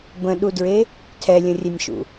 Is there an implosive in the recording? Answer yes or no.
yes